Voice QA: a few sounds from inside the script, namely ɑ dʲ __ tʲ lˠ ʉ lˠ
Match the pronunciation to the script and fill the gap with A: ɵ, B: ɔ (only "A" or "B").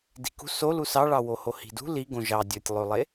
A